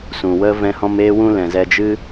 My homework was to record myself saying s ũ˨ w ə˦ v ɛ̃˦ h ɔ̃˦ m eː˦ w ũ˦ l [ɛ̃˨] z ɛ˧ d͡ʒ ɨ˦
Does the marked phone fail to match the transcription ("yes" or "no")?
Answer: no